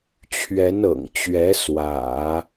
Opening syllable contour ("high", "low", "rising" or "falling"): rising